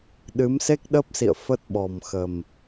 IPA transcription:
ɗɨ˨˦m se˦˥k̚ɗəː˦˥p̚sḭ˧˨ə̯ fə˦˥t̚ɓɔ˨˩m xə˨˩m

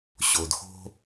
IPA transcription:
ɕo˩dxo̤˧

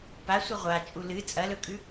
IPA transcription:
pasʷɨ ʁʷat͡ʃʼu lɨ t͡sʼɐlɵkʼʉ

